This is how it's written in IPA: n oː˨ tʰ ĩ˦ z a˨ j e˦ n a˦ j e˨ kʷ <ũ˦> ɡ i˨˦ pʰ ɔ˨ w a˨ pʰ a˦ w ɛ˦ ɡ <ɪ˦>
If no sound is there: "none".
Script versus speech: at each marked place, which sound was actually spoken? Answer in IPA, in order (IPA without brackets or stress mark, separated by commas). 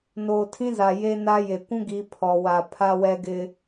ũ˦, ɪ˦